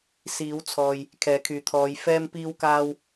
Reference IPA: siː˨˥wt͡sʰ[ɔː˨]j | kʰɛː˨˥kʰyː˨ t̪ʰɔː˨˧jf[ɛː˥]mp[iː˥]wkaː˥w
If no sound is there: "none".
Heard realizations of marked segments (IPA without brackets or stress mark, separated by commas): ɔː˨, ɛː˥, iː˥